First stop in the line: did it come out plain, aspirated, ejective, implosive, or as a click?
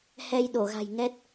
implosive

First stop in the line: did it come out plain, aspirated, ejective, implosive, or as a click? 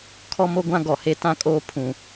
aspirated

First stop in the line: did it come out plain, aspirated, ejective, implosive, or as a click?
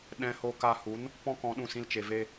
implosive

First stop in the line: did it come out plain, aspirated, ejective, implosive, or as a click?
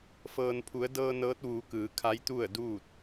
aspirated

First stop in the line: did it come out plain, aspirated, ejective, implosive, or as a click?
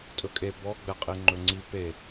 ejective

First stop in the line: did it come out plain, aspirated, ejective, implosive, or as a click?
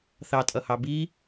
ejective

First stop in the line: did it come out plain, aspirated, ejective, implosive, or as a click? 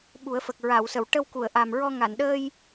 implosive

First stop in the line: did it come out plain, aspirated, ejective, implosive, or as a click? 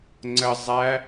click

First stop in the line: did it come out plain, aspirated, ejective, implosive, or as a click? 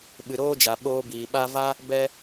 implosive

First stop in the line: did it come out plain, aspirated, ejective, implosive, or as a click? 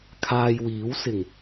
aspirated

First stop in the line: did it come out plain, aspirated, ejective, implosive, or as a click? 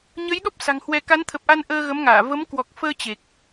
implosive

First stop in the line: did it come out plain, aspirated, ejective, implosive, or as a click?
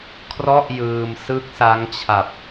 aspirated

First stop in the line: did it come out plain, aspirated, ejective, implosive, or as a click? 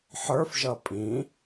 ejective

